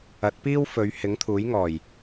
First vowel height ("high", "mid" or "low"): low